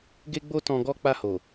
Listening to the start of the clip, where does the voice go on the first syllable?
high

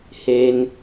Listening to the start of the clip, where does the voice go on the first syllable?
low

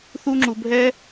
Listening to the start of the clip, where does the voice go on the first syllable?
high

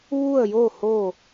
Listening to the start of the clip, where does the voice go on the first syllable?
falling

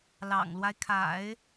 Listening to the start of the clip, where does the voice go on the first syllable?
low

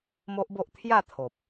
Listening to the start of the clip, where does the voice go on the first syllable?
high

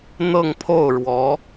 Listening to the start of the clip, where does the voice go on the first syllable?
falling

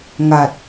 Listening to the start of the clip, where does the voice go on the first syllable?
low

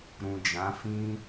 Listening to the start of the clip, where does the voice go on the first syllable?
low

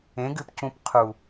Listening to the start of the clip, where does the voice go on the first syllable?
rising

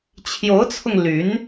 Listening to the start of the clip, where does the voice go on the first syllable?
rising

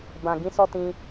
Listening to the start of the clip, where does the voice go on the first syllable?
low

